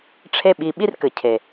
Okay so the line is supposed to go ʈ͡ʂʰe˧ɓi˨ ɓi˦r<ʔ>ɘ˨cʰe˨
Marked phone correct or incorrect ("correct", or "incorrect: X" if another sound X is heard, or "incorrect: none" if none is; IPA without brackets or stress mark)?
incorrect: k